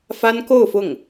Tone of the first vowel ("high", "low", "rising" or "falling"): high